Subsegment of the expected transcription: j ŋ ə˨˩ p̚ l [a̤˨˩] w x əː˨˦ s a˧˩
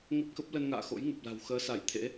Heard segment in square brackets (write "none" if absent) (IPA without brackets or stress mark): a̤˨˩